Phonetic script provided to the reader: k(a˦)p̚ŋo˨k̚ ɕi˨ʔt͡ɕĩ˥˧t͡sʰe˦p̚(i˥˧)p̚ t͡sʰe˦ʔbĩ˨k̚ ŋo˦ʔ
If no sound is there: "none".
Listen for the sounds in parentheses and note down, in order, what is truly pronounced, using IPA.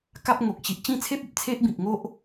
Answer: a˦, i˨

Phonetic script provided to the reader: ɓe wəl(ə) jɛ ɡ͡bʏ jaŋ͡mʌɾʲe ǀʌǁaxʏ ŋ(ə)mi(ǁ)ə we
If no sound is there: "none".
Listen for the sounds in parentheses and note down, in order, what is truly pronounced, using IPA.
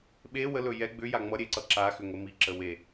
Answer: ɵ, ə, ǁ

